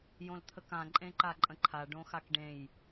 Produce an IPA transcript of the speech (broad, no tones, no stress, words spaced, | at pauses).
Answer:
jõlt̪ʰəkã ǃʼẽǃaǃʼə̃ǃʰa ɖõxakɖẽj